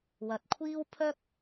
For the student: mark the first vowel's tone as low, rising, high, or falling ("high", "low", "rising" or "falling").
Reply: rising